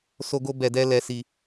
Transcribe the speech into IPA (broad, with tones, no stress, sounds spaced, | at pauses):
s o˧ ɡ o˧ b ɛ˨ d ɛ˧ l ɛ˧ s i˧